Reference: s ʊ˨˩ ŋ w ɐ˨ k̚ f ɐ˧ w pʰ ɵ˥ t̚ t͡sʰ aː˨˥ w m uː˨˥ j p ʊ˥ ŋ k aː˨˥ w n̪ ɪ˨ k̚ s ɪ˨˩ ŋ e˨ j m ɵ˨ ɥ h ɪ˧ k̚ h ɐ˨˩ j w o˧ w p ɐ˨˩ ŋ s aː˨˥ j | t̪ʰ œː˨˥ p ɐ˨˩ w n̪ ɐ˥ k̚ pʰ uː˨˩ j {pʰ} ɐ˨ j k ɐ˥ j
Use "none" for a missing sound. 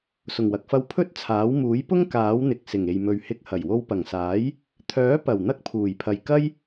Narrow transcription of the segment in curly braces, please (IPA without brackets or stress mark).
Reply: pʰ